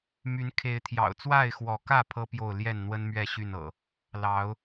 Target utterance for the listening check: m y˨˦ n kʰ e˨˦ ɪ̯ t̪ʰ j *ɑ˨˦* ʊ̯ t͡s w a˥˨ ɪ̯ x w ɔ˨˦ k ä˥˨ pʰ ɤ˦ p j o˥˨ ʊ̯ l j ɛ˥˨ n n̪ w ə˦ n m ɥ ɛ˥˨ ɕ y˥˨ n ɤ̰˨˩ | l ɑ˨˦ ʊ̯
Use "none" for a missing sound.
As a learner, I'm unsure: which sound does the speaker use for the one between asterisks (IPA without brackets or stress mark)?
ɑ̰˨˩